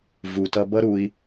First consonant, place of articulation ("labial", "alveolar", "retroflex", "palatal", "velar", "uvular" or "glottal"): labial